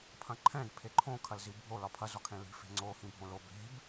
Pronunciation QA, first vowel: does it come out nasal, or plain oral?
nasal